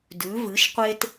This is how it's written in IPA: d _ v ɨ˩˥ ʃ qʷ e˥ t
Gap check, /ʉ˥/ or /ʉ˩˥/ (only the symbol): ʉ˩˥